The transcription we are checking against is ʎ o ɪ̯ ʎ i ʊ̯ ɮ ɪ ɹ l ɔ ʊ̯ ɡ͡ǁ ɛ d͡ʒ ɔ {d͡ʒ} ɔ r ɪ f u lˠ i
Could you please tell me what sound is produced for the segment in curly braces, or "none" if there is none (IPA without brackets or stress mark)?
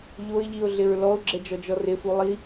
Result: d͡ʒ